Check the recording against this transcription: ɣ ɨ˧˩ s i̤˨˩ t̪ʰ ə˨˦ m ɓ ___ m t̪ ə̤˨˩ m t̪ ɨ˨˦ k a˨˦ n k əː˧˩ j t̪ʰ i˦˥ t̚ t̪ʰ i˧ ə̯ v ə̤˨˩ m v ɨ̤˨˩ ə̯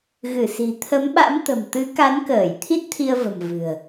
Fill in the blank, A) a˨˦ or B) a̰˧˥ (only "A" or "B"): B